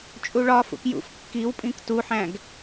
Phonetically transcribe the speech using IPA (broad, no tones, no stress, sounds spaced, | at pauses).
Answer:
t͡ʃʼ u ɭ ɒ f ṵ k j ṵ f kː i w pʼ ĩ k t u ħ æ̃ ɡ